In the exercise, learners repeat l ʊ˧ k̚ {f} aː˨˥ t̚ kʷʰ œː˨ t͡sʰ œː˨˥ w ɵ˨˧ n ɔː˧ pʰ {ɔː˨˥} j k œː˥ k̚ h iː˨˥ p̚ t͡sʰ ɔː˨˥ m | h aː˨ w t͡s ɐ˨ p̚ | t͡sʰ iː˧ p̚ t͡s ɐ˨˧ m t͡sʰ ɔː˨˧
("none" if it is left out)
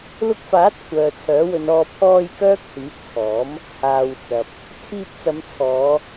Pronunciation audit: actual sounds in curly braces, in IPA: f, ɔː˧

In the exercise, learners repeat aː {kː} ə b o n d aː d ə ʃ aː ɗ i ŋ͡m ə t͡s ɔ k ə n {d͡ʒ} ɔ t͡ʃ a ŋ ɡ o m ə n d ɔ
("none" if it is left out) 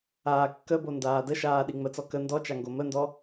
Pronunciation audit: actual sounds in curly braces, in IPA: kː, d

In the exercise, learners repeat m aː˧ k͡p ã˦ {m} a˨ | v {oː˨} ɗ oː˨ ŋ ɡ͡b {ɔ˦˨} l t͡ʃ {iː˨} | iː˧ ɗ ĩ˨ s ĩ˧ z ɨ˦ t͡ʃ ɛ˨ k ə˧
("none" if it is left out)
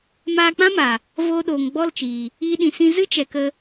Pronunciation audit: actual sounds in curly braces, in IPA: m, oː˧, ɔ˦˨, iː˨

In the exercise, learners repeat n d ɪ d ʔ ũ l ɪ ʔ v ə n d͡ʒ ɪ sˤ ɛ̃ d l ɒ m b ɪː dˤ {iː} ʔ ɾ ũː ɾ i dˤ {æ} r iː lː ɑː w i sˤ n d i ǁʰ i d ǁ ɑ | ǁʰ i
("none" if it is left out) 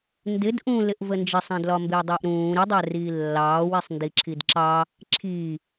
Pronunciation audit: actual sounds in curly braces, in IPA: ɪː, æ

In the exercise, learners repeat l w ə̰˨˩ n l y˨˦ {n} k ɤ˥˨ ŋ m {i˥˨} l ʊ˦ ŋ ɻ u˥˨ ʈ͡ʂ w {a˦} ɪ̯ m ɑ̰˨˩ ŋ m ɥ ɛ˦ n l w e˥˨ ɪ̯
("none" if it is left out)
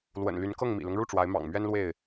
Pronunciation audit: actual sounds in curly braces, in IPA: n, ḭ˨˩, a˨˦

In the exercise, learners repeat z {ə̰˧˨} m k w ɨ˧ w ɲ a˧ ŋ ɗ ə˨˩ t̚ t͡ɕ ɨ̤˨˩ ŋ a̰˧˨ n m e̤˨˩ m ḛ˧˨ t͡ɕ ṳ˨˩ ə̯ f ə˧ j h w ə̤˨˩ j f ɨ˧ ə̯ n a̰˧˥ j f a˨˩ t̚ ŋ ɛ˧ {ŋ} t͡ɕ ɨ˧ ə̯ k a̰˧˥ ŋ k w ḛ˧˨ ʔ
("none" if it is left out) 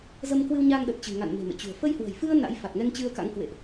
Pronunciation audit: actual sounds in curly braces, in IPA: ə˧, ŋ

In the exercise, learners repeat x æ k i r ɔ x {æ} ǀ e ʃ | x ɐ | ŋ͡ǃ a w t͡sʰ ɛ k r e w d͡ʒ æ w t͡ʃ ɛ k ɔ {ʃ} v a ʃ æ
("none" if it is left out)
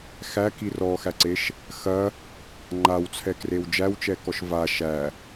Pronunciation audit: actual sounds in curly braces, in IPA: æ, ʃ

